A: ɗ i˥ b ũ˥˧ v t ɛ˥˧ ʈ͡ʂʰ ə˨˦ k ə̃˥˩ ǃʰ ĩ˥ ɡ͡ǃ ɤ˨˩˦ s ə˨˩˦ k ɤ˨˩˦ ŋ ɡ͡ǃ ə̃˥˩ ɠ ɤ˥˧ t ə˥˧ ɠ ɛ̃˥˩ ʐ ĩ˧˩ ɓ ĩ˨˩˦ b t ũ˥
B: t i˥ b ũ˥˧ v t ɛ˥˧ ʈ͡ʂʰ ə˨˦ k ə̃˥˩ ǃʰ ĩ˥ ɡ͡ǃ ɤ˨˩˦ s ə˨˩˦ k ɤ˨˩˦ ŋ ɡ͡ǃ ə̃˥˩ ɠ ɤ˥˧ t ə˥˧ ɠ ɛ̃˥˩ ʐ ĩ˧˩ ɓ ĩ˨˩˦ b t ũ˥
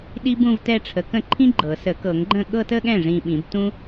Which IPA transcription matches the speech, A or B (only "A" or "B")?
A